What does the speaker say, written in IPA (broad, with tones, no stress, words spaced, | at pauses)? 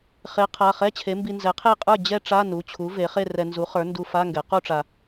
χe˩˥qʰa˩˧˩ χɛ˧˥˧t͡ɕʰe˩˥mbi˧ nzɛ˩˥qʰe˥˩ qʼə˞˥˩ d͡ʑɛ˥˧ʈ͡ʂa˧˥˧nu˩˧˩t͡ɕʰu˩˥ ve˩˥χe˥˧rɛ˧ nzu˩˥χə˞˩˥ndu˧ fa˧˥˧ŋɡɛ˩˥ qu˥˧ʈ͡ʂa˧